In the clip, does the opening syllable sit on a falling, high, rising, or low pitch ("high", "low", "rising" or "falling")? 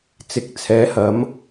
rising